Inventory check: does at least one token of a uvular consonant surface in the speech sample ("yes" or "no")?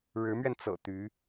no